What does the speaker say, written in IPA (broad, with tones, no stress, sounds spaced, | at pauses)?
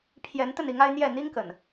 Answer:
pʰ j ɛ˨˦ n t̪ ə˥˨ n i˨˦ ŋ a˦ ɪ̯ n̪ j ɛ˥˨ n̪ i˦ ŋ k ə̰˨˩ n